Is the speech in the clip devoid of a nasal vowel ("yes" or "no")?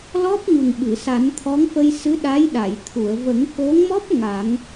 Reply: yes